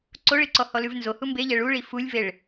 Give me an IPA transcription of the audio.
ǀ o ɭ i ǀ ɔ h ɔ l ʉ v n z o h u m b e ʎ ɛ ɭ u ɭ i f u lʲ v e ɭ

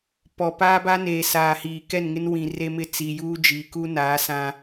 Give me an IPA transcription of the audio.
p ɔ˨ p aː˦ b a˦ n eː˨ s aː˨ h iː˨ k ɛ˦˨ n ŋ ɪ˦ n w ĩ˨ r e˦ m ɪ˦˨ t͡s i˨ j uː˦ d͡ʒ iː˨ k u˦ n aː˨˦ s ã˦

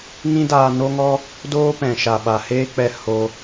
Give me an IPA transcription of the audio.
ŋ ĩ˦ d aː˧ n o˦ ŋ ɔ˦ | d oː˦ p ɛ̃˨ ʃ a˨ ɓ a˨ h eː˦ k͡p ɛ˧ h o˧

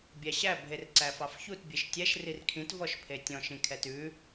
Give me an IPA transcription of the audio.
bʲ æ ɕ æ bʱ e r ǀ æ f ɑ f ç u t bʲ e ʃ tʲ ɛ ʃ r i r kʰ ĩ t v ɔ ʃ pʰ e tʲ ɔ̃ ʃ ĩ kʰ ɛ t ʉ

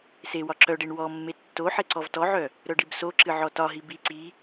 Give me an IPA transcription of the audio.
s e w ɒ ǁ œ ɖ e ɳ w ɔ mː e tː o ħ e ǀ ɔ v t ɔ ʕ œ | ɾ œ ɖ i b s o ǁ ɨ ʕ ɔ t ɒ ɦ i b i ǀ i

